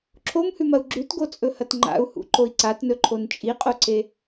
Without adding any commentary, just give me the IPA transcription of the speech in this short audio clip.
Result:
ǁʰ o m h ʉ m ɐ u̯ ɡ͡ǁ ʉ t ɡ o t͡sʼ ɵ h ɐ t ŋ͡ǃ a̰ u̯ h ṵ ǃ o i̯ ǀ a t n ɵ ǃʰ o n t͡ʃʼ i qʼ o ǀ e

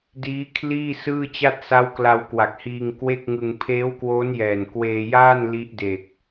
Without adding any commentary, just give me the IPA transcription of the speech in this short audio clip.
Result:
d iː˦˥ kʰ l iː˥˩ s ɯː˥˩ t͡ɕ a˥˩ t̚ s a˦˥ w k l a˧ w k w a˨˩ k̚ h iː˧ ŋ k w e˥˩ k̚ ŋ ɯ˧ ŋ pʰ eː˦˥ w k w oː˦˥ n j ɛː˨˩ n k w eː˧ j aː˥˩ n l i˦˥ ʔ d e˨˩ k̚

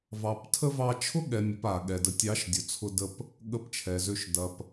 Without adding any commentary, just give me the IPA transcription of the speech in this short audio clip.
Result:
v ɑ˨ p tʰ ə˦ v ɑ˧ t͡ʃʰ ʊ˦ ɠ ɛ˨ mʲ ə˨ p a˨ ɠ ɛ˨ d ə˨ tʲ ɑ˨˦ ʃ dʲ ʊ˨ t͡sʰ ʊ˧ d ə˧ p | ɠ ə˧ p t͡ʃʰ ɛ˨ z ø˧ ʃ d ɐ˨ p

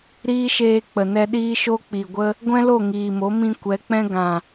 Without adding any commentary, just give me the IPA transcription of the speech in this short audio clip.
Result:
ɾ iː˦ ʃ eː˧ k͡p ə˨ n ɛ˧ ɗ iː˦ ʃ o˦ k͡p i˨ ɡʷ ə˦ | ɡʷ ɛ̃˦ l o˦˨ ŋ iː˨ m o˨˦ m ĩ˧ kʷ ɛ˨˦ k͡p ɛ̃˦ ɡ ã˨

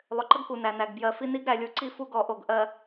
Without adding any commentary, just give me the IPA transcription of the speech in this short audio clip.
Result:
lˠ ʏ˨ ǃ ə˦ ɡ k u˨ n æ˨ n æ˨ ɡ b j ɜ˨ f i˦ n i˦ ɡ ɾ æ˨ lʲ u˨ ǀ i˦ f u˦ ɡ ɔ˨ ʔ o˨ ɡ ʔ ɜ˨

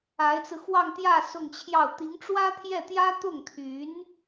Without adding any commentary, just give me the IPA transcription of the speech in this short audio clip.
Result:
a˧˥ ɪ̯ t͡s ɹ̩˧ x w ɑ˥˧ ŋ t̪ j ä˥˧ s ʊ˥˧ ŋ t͡ɕʰ j ɑ˥˩ ʊ̯ t̪ i˧˥ ŋ ʈ͡ʂ w ä˥ t̪ʰ j ɛ˥˩ t̪ j ä˥ t̪ ʊ˥˩ ŋ t̪ʰ y˧˥ n

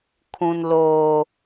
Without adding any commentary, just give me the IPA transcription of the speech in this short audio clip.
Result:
kʰ ũ˨ n l oː˨

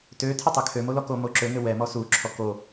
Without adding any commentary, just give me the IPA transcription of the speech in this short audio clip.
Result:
t ø tʰ ɘ tˤ ɜ kʰ ø m o l ɔ k o m o ǁ ø ŋ ɘ w ɛ m ɔ s u ǁʰ ɔ k o

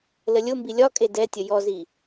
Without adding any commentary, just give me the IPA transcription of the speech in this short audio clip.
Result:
l ə lʲ ʊ m b i lʲ ɒ kʼ e d ɛ tʲ ə j ɔ z i

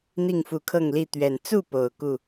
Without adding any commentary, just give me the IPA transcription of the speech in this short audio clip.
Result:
n̪ i˥˨ ŋ f u˨˩ kʰ ɤ˥˨ ŋ l i˥˨ t̪ ɥ ɛ˨˩ n t͡s u˥˨ p o˨˩ ʊ̯ k u˥˨

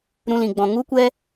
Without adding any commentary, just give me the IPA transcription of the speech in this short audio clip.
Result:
ɾ ũ˦ l ĩ˧ ɡ͡b ɔ̃˧ ŋ u˦ kʷ ɛ˦

